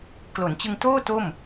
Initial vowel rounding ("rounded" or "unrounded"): rounded